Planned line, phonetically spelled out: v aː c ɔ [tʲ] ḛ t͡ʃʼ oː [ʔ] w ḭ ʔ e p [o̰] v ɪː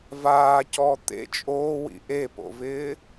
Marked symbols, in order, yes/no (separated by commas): no, no, yes